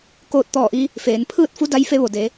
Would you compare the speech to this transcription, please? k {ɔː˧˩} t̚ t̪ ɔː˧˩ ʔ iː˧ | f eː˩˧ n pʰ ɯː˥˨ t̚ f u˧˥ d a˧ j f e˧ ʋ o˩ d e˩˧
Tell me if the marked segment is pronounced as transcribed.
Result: no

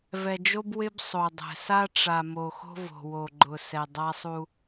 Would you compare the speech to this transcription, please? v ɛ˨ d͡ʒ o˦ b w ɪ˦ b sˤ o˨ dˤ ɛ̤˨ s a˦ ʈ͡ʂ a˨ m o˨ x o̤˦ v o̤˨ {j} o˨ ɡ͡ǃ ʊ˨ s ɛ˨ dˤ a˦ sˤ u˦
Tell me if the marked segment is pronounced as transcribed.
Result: no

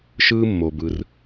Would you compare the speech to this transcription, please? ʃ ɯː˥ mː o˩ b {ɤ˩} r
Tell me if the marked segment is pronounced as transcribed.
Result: no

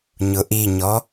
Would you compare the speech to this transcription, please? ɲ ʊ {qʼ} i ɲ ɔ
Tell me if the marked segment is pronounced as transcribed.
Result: no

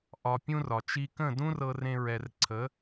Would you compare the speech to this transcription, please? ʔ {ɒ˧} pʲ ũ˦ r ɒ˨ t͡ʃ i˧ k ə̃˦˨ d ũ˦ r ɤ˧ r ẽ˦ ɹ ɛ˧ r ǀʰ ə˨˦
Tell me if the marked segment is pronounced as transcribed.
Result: yes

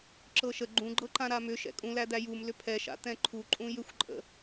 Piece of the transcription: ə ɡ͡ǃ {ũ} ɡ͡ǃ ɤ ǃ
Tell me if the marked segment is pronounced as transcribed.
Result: yes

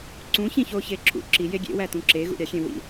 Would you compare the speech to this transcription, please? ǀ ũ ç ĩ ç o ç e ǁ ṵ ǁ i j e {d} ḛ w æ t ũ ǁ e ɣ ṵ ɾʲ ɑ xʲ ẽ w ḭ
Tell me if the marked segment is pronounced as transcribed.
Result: no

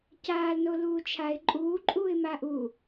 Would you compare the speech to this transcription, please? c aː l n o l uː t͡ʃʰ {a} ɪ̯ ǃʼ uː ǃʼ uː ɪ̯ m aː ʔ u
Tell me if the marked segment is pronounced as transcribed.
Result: yes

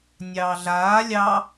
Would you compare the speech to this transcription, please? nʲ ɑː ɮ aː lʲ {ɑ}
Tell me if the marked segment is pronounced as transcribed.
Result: yes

